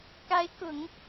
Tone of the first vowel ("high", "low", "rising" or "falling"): rising